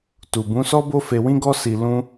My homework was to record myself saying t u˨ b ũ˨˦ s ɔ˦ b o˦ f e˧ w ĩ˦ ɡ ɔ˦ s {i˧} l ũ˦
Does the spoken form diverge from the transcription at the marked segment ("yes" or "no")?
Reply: no